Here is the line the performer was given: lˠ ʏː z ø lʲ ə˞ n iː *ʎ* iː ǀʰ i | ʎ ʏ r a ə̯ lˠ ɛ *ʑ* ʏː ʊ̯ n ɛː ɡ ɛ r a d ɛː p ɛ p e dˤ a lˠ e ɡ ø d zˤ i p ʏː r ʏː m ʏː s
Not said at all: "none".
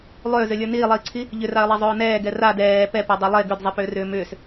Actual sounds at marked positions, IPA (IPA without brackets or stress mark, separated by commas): lˠ, zˤ